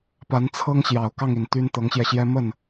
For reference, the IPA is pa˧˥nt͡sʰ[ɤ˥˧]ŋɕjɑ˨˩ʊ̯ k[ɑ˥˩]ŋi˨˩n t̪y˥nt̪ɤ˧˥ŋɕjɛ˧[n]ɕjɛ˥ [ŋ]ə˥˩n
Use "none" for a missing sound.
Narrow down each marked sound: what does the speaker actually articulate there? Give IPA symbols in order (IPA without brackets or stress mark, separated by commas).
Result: ɤ˥, ɑ˥˩, none, m